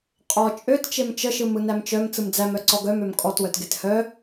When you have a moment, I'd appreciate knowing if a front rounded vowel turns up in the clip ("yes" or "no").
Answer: yes